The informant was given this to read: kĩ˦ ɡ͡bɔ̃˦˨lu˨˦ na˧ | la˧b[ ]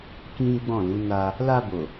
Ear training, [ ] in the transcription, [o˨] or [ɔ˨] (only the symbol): o˨